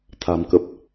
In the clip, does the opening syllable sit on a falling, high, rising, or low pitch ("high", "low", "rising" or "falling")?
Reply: low